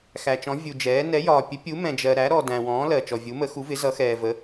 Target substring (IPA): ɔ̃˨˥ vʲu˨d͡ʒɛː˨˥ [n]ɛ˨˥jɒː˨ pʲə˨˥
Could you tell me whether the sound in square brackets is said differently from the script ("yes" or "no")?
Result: no